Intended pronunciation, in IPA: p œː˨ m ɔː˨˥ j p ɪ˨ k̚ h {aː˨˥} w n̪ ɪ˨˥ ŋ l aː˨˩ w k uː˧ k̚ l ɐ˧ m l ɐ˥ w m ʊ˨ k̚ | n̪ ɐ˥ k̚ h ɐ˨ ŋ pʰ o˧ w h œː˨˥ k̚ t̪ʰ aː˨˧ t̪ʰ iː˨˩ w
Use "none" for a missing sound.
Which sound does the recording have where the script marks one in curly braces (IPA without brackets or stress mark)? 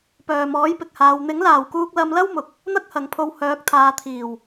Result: aː˨˧